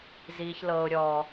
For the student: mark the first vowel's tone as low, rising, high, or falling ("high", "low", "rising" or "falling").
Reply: low